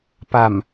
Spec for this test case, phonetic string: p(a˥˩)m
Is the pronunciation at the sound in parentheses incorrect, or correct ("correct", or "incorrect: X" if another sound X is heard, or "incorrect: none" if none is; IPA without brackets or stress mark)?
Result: incorrect: a˨˩